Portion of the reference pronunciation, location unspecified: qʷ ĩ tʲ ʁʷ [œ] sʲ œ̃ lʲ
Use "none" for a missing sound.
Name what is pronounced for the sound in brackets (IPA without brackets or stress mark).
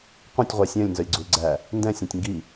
ɛ